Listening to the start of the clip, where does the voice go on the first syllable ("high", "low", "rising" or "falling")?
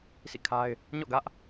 falling